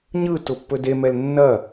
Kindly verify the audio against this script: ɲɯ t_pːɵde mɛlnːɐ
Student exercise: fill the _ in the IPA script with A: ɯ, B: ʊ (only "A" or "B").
B